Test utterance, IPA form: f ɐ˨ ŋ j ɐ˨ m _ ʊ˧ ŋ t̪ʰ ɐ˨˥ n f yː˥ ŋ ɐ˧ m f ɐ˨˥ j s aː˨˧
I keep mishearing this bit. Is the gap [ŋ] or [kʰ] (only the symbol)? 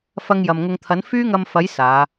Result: ŋ